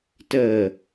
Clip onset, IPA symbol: t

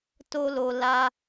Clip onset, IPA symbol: t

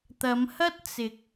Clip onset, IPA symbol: t̪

